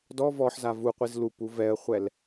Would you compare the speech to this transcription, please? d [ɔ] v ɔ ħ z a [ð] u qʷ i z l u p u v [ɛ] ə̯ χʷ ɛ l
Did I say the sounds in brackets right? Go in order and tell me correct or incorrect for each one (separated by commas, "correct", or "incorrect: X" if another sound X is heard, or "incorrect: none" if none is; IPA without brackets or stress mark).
correct, incorrect: v, correct